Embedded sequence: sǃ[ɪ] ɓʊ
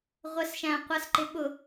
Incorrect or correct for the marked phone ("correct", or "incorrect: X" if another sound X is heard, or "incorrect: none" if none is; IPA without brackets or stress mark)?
correct